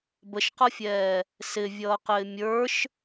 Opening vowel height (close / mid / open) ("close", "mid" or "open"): mid